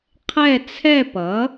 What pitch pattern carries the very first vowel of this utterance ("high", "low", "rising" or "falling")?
falling